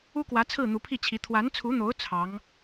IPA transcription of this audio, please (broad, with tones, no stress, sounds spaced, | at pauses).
u˥ k w ä˧˥ t͡sʰ ɹ̩˥˩ n̪ u˧˥ pʰ i˥˩ t͡ɕʰ i˧˥ t̪ʰ w a˧˥ n t͡sʰ u˧˥ n̪ o˧˥ ʊ̯ t͡sʰ ɑ˧˥ ŋ